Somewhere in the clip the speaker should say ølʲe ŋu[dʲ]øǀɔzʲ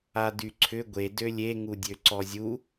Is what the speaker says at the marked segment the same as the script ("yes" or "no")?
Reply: yes